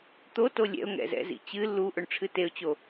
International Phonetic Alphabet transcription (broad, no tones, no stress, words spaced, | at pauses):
t̪oto lʲɛ̰ʊ̯ ŋɛ̰zɛ̰zḭt͡ɕɨ lːu ʔoɳʈ͡ʂʰɨteʊ̯t͡ɕo